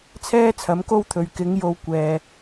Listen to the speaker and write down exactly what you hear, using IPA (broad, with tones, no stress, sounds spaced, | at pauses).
t͡sʰ ɛː˥ t͡sʰ ɐ˨˥ m k o˥ w t̪ʰ ɵ˨ ɥ k ɪ˨˥ ŋ j o˨˧ w kʷ ɛː˨